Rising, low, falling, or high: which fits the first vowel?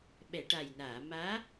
low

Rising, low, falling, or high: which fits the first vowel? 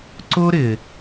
high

